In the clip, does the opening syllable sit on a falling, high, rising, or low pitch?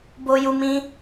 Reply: high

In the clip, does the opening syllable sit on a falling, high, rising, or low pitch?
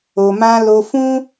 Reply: low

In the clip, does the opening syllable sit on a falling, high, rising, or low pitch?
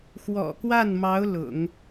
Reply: low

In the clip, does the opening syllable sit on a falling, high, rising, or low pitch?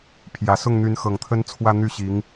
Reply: low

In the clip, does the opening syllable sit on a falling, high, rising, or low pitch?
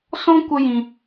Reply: high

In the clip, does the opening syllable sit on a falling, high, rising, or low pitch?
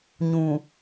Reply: low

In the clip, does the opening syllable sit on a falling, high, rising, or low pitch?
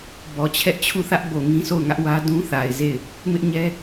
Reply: low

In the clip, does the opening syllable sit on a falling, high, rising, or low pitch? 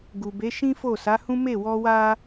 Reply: low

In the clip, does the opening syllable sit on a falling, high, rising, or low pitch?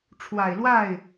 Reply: low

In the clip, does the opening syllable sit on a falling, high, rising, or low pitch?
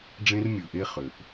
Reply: high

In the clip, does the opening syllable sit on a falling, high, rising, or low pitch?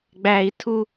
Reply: high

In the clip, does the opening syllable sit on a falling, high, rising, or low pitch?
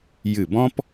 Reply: falling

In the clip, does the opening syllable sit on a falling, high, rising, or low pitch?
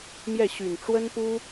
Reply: falling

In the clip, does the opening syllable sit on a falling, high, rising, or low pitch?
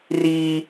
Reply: high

